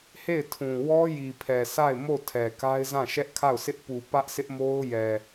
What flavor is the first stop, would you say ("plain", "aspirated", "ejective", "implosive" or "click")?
aspirated